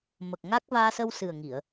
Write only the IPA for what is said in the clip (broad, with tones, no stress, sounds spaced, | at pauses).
m ə˨˩ k̚ ŋ a˦˥ k̚ v aː˧ s ə˧ w s ɨ˨˩ ə̯ ŋ i˨˩˨ ə̯